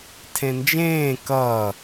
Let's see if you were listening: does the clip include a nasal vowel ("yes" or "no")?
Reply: yes